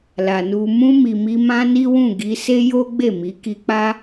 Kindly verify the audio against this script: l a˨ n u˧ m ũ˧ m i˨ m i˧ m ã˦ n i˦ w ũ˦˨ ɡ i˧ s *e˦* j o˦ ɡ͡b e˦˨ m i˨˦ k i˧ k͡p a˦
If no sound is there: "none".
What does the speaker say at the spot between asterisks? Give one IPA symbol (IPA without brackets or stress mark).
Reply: e˦